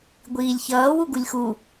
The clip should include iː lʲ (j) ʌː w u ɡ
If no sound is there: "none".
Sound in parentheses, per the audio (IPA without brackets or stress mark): ç